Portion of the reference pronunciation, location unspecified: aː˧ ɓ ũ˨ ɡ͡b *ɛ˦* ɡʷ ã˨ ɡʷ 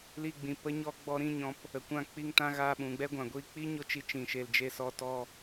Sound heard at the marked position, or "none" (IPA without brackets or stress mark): ɛ˦